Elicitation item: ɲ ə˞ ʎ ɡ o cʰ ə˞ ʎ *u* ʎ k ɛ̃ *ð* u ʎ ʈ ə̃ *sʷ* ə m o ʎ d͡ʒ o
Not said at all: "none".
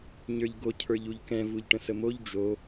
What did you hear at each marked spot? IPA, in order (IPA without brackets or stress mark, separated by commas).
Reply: u, v, s